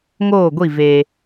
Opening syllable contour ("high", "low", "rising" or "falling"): falling